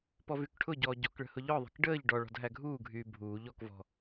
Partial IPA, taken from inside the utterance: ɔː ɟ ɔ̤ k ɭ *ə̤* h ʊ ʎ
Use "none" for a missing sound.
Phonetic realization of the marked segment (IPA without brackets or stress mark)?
ə̤